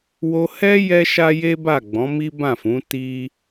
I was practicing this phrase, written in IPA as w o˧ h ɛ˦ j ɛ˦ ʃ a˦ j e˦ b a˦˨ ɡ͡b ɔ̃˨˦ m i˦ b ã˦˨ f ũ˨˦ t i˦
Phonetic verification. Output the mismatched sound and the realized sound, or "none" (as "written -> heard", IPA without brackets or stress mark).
none